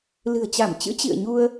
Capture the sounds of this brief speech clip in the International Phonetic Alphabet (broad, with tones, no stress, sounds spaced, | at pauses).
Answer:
l ɨ̤˨˩ ə̯ t͡ɕ a˧˩ m t͡ɕ ɨ̰˧˥ t͡ɕ ḭ˧˨ ə̯ ɲ u˧ ə̯